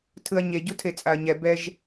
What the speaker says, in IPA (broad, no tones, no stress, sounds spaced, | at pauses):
tʰ ɯ ɐ̯ ɲ e ɟ u tʰ e t͡sʼ a ɐ̯ ɲ ɛ b ɛ ʒ